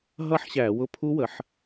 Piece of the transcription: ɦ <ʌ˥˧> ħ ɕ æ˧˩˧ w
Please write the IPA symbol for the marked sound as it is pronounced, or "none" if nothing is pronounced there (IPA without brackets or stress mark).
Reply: ʌ˥˧